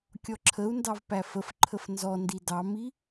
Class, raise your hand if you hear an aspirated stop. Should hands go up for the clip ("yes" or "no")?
yes